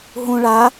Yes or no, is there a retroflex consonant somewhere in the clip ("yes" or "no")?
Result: yes